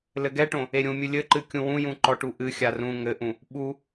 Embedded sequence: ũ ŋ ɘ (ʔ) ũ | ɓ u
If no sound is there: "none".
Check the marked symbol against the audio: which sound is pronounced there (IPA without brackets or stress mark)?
ʔ